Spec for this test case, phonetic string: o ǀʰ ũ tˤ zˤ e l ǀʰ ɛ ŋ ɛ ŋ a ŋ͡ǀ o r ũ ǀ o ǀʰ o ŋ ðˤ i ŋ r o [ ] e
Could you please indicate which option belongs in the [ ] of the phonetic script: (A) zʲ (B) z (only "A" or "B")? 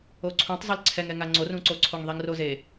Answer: B